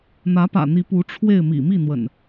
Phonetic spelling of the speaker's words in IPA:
n̪ ä˨˦ p ä̰˨˩ n̪ i˨˦ p u˨˦ ʈ͡ʂʰ w e˥˨ ɪ̯ m ḭ˨˩ m i˥˨ n̪ w ə̰˨˩ n

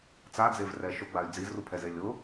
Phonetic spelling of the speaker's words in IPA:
t͡s a d͡z e v r ɛ ʃ ʊ ɡ͡b a y̯ d͡z i z r u pʰ ɛ z e lʲ ʊ

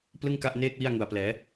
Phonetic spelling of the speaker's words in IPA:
p l ɯ˥˩ ŋ k a˥˩ ʔ n eː˥˩ k̚ w i˥˩ a̯ ŋ u˨˩ a̯ p l ɛː˩˦

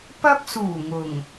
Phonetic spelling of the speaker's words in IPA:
p ɐ˧ p̚ s uː˨˩ ŋ ʊ˨˩ ŋ

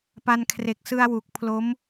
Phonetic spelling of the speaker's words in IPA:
p a˧ n kʰ r e˨˩ k̚ s ɯ˧ a̯ w u˨˩ k̚ pʰ l o˦˥ m

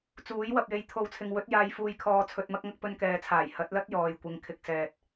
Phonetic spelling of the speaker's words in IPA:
t͡s uː˨˥ j w ɐ˧ p̚ j e˧ j t̪ʰ o˨˧ w t͡sʰ ɪ˨ ŋ w ɵ˨˥ t̚ j aː˧ j f uː˧ j kʰ ɔː˧ t͡sʰ ɵ˧ t̚ m ɐ˥ k̚ ŋ ɐ˥ k̚ p ɵ˧ n k ɛː˨ t͡sʰ aː˨˩ j h ɐ˨˥ t̚ l ɐ˥ t̚ j ɔː˨ j kʷ ɪ˨ ŋ kʰ ɪ˨˥ k̚ s ɛː˨ t̚

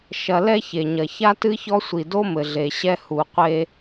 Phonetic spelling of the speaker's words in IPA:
ʃ ɐ˧ l ɛ˥ ç e˩ ɲ ɐ˩ ç a˥ t ɨ˥ ç ɔ˥ sʷ i˩ d o˥ m ɘ˩ ɮ e˩ ɕ ɛ˧ h u˩ qʷ e˧

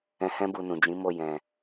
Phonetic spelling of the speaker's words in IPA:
ɛ̃˦ h ɛ̃˦ b u˧ n ũ˨ d͡ʒ ĩ˨˦ m o˦˨ j ɛ̃˨

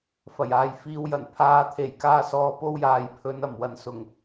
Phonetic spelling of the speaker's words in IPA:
f ɐ˨˩ j aː˨ j f iː˨ w j ɐ˨˩ n pʰ aː˨˧ t̪ʰ e˨˩ j k aː˧ s ɔː˨˧ p o˥ w j aː˨ j pʰ ɵ˨˧ n ɐ˨˩ m w ɐ˨ n s ʊ˨˩ ŋ

